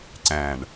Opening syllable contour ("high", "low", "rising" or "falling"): low